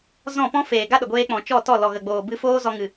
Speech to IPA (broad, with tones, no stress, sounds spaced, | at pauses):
z ɔ̃˦˨ p ɔ̃˦ f eː˨ ɡ a˦ ɗ ə˨ ɡʷ eː˧ k͡p ɔ̃˨ t͡ʃ ɔ˦˨ t ɔ˦˨ l ɔ˨ ɣ ə˨ ɡ͡b oː˨ b ɨ˧ f oː˦ z ɔ˧ ŋ ɨ˨